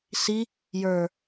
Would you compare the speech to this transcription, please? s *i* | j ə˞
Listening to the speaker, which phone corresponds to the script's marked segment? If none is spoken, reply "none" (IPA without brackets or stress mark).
i